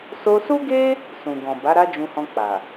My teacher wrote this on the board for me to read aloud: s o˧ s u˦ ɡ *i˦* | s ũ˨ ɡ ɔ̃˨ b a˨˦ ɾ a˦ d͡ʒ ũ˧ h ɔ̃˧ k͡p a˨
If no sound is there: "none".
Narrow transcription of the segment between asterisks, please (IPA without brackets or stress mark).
e˦